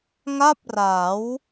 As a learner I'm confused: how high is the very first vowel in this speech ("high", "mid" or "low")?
low